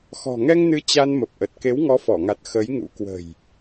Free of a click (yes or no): yes